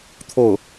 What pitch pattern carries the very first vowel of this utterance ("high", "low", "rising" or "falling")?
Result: falling